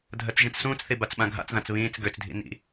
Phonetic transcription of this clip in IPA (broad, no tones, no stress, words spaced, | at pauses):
dʱɜt͡sʒĩt͡ssũːt͡sθi bat͡sɓãɡʱa̰t͡sðãt͡s βĩːt͡s ɡøt͡sdʱḭ nḭ